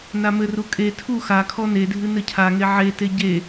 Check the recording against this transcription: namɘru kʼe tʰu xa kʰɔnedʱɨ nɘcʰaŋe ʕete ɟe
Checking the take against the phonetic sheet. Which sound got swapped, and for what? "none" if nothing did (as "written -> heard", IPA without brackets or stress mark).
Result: none